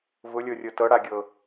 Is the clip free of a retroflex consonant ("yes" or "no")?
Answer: no